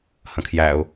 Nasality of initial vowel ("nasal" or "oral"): nasal